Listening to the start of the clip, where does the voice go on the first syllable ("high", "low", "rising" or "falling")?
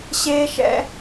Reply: high